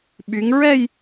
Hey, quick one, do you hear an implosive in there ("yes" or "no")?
yes